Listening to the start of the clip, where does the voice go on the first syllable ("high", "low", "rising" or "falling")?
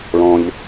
low